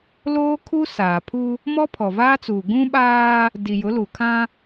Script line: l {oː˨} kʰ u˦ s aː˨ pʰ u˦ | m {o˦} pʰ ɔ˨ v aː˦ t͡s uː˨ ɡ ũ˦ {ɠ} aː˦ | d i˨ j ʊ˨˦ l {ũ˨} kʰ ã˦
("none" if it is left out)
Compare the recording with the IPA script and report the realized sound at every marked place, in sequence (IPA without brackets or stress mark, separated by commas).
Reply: oː˦, ɔ˦, ɓ, u˨